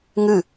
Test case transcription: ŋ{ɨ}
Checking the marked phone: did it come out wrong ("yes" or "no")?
no